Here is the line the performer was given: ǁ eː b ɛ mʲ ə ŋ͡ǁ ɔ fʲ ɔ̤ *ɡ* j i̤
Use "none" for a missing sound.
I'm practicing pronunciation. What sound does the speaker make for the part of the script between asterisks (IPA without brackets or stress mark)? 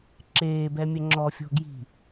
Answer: ɡ